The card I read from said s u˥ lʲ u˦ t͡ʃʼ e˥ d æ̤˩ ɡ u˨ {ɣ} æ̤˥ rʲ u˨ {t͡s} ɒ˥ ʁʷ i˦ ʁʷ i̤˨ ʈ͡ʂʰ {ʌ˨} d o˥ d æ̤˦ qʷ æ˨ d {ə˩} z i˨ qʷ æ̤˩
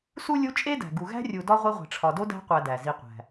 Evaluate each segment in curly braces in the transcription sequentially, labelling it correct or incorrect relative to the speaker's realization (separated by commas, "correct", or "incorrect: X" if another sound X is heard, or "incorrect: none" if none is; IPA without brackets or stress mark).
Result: correct, incorrect: d, incorrect: ɒ˨, incorrect: æ˩